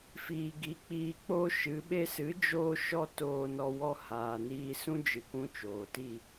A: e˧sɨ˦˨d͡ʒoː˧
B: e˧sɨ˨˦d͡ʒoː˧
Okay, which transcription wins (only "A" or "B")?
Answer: B